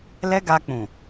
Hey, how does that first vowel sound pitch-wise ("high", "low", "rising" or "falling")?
high